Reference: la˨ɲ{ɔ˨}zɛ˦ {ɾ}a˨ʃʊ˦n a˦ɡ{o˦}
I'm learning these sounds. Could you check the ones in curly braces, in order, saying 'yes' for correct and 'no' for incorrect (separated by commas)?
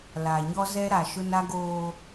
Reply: no, yes, no